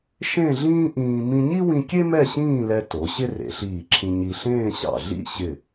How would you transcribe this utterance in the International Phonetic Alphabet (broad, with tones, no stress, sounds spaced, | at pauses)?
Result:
ʃ ẽ˥˧ ɮ ĩː˥ ʔ ĩː˧ m ĩ˧ ɲ i˥ w ĩ˧ kʲ e˥ m ɛ˥˧ ɕ ĩː˥˧ l ɛ˧ t o˩˧ ɕ ɪ˥ r ḛ˩˧ ɬ iː˧˩ ǁʰ ĩ˧ ɲ i˧ ɬ ẽː˥˧ ɕ ɑ̰˧˩ ɮ ḭ˥˧ ɕ ɪ˧˩